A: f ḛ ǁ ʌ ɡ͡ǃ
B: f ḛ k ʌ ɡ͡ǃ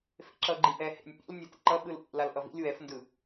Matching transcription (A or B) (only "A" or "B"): A